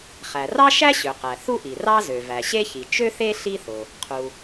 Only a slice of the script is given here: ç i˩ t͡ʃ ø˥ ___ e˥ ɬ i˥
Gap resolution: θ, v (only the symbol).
θ